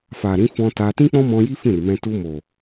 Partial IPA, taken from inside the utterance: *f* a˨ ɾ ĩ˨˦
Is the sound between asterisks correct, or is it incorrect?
correct